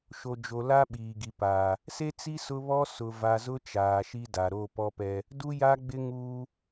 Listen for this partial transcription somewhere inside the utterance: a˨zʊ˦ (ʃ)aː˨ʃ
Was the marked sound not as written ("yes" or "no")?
yes